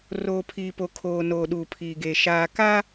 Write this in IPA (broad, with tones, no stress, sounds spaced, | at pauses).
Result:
r oː˨ pʰ iː˨ p o˨ kʰ oː˨ n oː˨ ɗ uː˨ pʰ iː˨ ɡ eː˨ ʃ aː˨ k a˦